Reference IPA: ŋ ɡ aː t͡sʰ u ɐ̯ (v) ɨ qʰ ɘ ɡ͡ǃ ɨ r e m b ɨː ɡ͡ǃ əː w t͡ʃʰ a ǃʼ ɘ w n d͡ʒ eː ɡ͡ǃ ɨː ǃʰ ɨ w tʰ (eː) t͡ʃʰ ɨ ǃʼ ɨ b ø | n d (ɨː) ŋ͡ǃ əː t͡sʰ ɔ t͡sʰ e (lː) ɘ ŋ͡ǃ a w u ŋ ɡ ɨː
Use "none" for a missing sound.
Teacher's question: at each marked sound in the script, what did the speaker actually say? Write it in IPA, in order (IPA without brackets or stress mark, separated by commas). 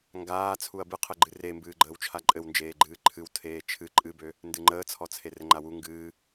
b, eː, ɨ, r